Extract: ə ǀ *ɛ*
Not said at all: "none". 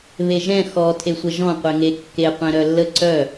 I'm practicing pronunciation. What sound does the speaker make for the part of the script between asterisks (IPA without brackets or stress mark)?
œ